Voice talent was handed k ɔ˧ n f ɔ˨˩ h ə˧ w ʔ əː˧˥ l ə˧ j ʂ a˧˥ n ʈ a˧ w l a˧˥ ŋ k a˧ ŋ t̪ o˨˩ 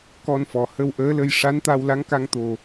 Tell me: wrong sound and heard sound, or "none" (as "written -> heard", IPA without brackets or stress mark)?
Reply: ʈ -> t̪